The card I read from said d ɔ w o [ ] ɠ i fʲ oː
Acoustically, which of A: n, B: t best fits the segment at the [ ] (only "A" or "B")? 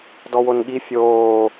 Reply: A